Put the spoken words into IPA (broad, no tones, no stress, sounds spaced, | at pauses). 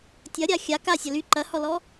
tʲ ɐ ɾʲ a xʲ a k a sʲ ɐ l y ǃ ɐ h ɔ l ɔ